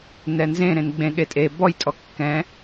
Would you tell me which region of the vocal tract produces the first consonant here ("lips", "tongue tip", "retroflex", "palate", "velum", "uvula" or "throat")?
tongue tip